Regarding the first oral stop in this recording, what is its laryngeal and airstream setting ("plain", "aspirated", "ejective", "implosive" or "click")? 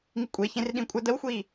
ejective